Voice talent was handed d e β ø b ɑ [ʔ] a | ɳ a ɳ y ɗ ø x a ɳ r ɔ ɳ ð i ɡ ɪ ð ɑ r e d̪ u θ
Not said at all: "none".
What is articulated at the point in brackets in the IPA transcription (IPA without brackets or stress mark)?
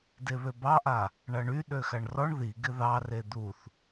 ʔ